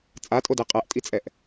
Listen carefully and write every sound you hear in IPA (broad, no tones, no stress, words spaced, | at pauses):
t͡sʼatʼode qʼæʔtʼit͡sʼɛʔ